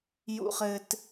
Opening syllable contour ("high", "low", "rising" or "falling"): high